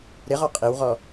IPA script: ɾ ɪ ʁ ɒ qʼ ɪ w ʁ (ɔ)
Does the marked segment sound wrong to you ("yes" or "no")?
no